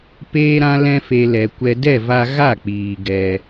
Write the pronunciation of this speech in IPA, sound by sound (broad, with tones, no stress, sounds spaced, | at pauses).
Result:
p eː˦ ɾ ã˦ l ɛ̃˧ f e˨ l ɛ˨ kʷ ɛ˧ d ɛ˦˨ v a˧ ɣ a˦˨ k͡p iː˨ ɡ ɛ˧